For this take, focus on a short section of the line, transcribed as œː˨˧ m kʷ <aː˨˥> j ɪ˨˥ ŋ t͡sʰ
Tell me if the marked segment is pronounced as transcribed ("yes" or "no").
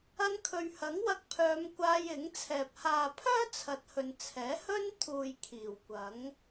no